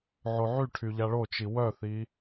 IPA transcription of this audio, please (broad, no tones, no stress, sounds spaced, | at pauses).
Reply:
ʕ o ʕ y ʈʰ y ʎ a ɭ o t͡ʃ i w œ θ i